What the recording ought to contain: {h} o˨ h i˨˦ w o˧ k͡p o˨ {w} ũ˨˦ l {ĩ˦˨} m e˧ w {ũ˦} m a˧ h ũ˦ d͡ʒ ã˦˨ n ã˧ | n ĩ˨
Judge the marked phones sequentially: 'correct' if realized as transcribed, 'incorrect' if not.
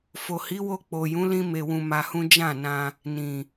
incorrect: f, incorrect: j, incorrect: ĩ˧, incorrect: ũ˧

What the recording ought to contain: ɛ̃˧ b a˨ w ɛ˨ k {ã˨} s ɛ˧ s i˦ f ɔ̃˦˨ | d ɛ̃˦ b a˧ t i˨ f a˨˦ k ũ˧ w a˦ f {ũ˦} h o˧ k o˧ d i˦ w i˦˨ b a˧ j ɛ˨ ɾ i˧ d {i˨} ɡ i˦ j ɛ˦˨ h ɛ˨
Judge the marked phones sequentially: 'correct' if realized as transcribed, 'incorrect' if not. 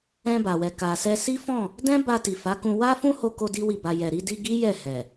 incorrect: a˨, correct, incorrect: i˧

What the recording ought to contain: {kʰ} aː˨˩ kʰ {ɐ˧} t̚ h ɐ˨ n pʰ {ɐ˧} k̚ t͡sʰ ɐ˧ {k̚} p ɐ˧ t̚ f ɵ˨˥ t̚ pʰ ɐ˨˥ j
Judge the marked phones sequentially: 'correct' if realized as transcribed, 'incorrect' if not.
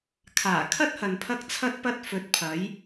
correct, incorrect: ɐ˥, correct, incorrect: t̚

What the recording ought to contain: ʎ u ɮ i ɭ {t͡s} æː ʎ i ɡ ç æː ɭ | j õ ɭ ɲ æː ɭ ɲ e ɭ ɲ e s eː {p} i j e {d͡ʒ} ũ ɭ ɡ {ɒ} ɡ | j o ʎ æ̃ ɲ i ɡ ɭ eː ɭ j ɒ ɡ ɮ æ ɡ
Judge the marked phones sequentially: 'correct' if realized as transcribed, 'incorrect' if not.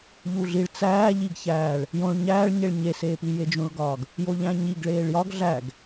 correct, correct, correct, incorrect: ɒː

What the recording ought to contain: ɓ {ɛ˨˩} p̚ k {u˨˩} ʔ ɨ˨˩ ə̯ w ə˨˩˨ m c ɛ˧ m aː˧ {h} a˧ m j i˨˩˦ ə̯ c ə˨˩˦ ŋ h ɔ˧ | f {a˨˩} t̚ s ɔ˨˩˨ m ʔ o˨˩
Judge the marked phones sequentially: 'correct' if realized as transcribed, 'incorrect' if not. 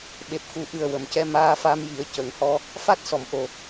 incorrect: e˨˩, correct, incorrect: f, incorrect: a˦˥

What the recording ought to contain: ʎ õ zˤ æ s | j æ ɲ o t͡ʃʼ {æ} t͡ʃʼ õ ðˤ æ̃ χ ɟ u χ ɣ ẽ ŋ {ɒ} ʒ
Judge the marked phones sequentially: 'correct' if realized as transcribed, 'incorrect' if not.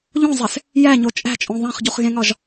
incorrect: æ̤, correct

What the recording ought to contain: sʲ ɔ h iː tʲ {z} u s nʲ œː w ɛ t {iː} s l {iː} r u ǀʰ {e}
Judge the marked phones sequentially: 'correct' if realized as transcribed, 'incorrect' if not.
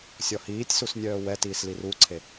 incorrect: s, correct, incorrect: i, correct

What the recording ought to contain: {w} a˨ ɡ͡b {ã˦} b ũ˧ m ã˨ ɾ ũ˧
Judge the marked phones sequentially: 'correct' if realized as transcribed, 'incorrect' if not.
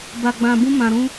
incorrect: b, incorrect: ã˨

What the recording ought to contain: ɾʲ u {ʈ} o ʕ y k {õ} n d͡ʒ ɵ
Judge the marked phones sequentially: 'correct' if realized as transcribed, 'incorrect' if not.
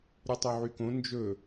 incorrect: tˤ, correct

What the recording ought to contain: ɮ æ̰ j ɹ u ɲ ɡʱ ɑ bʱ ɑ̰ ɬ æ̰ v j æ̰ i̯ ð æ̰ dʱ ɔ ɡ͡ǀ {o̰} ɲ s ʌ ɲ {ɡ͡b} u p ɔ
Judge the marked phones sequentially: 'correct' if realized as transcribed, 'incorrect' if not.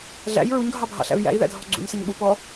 incorrect: ṵ, incorrect: ɓ

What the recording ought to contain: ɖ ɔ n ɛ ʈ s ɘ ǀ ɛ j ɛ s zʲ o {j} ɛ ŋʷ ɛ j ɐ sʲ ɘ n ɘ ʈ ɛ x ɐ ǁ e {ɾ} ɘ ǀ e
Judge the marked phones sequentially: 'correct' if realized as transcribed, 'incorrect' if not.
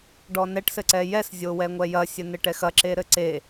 incorrect: w, correct

